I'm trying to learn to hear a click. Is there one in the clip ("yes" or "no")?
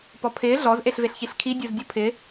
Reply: no